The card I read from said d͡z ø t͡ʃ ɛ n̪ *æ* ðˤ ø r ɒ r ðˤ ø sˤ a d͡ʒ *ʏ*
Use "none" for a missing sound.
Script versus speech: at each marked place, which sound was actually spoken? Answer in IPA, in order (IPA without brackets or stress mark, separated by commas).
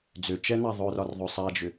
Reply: a, ʏ